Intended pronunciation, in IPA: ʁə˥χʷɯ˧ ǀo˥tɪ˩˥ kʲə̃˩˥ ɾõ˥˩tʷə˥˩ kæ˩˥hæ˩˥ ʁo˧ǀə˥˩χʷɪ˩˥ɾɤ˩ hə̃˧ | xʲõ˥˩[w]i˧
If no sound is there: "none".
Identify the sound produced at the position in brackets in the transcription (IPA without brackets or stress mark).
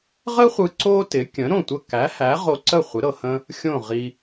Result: ʁ